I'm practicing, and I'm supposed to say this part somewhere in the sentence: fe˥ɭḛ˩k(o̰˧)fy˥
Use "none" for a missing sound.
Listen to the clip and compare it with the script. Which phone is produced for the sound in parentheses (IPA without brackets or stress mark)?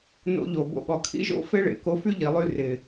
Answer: o˧